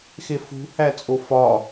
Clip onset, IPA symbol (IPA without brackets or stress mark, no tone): x